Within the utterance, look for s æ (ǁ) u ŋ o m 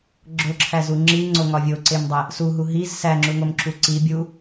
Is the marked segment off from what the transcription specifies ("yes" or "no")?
yes